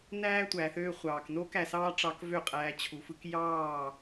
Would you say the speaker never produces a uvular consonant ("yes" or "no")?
no